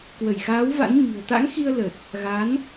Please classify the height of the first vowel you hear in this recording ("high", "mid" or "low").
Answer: mid